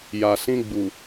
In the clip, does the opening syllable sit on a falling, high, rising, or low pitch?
low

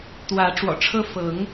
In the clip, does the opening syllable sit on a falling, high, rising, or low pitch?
rising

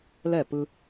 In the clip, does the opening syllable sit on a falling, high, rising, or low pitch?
falling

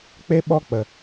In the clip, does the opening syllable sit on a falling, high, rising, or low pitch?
high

